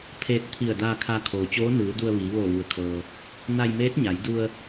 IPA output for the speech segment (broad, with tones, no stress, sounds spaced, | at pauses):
pʰ eː˧ t̚ t̪ʰ i˧˩ ə̯ d aː˧ kʰ a˧ kʰ oː˩ t͡ɕ oː˧˥ n ɯː˩˧ d u˧ ə̯ ʋ iː˩˧ ʋ oː˧˩ ʋ u˩ ə̯ kʰ ɤː˩ | n a˧ j m eː˧˥ t̚ ɲ a˩˧ j d u˧ ə̯